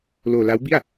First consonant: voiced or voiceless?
voiced